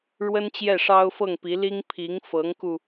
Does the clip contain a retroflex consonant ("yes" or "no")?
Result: yes